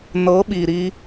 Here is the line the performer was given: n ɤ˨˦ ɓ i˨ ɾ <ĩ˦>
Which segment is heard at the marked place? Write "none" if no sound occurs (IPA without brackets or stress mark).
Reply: i˦